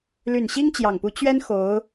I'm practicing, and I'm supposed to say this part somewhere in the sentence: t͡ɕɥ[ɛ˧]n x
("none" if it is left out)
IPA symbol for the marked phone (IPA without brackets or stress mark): ɛ˥